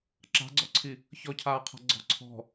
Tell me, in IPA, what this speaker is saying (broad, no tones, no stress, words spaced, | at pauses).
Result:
ǁa̤ɡ͡ǀɔǀʰi | çɔcʰaːqʰa̤ ɡ͡ǀɔ̤ǀʰɔ̤